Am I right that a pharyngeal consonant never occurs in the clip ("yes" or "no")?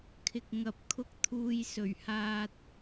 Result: yes